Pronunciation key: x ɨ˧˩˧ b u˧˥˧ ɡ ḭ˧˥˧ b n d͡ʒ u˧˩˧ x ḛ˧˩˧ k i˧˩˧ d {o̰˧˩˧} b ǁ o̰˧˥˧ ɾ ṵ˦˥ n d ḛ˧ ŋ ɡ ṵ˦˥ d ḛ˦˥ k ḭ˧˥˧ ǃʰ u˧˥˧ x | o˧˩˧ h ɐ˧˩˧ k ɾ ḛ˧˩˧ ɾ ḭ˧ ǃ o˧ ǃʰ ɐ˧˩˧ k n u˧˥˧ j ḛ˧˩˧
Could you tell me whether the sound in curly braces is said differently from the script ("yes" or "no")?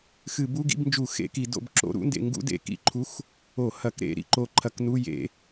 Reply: yes